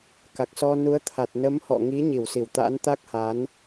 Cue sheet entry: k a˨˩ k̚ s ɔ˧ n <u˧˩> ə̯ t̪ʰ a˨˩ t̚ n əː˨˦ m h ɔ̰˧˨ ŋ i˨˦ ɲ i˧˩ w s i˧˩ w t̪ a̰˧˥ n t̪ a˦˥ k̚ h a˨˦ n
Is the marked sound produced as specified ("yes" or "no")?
no